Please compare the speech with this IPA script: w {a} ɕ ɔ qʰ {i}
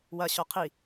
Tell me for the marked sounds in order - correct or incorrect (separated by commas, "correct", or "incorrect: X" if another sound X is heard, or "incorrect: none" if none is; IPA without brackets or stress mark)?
incorrect: ɐ, correct